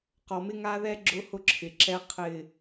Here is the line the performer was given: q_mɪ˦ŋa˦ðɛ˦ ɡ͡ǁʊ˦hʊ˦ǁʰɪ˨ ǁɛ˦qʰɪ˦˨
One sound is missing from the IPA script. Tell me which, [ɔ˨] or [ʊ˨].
ɔ˨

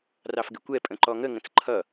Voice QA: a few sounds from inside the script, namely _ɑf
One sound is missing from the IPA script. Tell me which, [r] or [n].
r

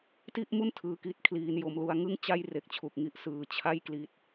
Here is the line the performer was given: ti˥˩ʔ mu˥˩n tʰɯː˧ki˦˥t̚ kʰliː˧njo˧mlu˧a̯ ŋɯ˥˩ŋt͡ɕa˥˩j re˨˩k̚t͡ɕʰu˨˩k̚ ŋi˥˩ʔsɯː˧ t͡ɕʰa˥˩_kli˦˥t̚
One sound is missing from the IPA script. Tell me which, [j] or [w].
j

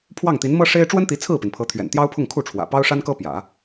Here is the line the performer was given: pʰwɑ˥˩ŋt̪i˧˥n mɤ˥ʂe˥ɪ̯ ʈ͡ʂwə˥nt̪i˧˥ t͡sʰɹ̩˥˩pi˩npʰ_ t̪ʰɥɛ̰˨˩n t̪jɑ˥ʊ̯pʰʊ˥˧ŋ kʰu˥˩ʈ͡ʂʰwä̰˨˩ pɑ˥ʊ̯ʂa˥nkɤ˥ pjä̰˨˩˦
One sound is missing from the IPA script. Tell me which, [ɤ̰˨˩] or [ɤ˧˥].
ɤ˧˥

